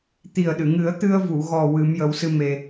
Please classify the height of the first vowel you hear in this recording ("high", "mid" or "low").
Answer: high